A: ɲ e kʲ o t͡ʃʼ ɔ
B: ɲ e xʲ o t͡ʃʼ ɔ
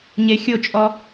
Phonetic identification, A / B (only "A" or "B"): B